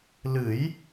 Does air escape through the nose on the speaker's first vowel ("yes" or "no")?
no